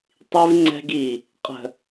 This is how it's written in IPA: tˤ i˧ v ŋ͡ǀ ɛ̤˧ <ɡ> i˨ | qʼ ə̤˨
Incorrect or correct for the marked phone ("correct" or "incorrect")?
correct